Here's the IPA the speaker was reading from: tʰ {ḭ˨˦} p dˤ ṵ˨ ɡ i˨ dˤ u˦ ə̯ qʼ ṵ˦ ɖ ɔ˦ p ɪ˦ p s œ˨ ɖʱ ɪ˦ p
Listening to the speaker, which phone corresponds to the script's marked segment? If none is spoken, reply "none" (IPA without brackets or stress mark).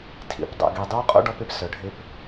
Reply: ḭ˨˦